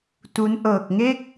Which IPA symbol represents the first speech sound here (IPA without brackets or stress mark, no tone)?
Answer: t